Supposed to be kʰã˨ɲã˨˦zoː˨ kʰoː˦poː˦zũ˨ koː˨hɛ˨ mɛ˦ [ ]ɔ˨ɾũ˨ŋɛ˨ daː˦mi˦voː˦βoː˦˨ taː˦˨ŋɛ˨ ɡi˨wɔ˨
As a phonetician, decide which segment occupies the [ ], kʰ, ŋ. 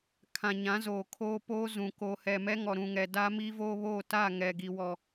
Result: ŋ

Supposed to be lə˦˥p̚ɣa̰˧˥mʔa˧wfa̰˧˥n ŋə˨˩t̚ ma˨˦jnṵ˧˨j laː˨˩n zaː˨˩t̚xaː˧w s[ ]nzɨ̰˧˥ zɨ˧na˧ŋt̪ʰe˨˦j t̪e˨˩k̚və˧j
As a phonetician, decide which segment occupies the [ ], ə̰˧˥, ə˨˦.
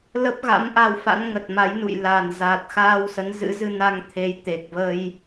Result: ə˨˦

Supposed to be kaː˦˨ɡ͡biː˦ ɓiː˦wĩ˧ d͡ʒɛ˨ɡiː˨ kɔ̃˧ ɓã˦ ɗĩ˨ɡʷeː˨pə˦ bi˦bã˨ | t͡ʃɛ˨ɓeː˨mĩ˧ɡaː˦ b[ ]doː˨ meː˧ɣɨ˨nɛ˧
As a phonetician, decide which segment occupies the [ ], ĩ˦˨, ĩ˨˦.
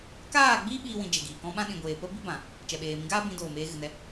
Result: ĩ˨˦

